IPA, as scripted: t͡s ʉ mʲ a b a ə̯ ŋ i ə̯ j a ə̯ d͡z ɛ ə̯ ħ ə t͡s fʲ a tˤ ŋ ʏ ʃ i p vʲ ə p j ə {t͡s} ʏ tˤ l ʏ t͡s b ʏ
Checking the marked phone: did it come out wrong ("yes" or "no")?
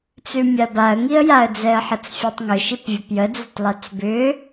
yes